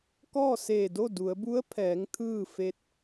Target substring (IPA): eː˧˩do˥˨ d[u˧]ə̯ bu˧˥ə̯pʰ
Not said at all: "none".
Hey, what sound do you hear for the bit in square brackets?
u˩˧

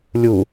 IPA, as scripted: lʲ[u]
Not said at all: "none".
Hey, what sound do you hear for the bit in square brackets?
u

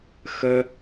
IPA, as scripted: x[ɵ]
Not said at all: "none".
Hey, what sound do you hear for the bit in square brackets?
ə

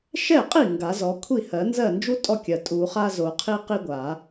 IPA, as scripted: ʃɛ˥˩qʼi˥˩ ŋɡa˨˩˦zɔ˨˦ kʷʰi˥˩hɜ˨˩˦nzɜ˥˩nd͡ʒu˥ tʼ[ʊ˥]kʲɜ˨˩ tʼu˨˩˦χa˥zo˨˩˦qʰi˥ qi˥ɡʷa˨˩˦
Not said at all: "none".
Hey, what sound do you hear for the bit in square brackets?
ɔ˥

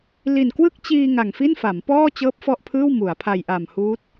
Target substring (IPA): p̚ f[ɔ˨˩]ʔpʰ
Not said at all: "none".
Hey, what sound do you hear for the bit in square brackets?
ɔ˥˩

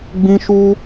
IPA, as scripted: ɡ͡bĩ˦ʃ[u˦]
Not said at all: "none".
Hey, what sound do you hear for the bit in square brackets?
u˦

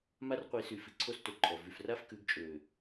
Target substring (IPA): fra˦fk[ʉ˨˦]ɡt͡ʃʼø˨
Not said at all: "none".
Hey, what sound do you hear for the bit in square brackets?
ʉ˨˦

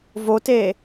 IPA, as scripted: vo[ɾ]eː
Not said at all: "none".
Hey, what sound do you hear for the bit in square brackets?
t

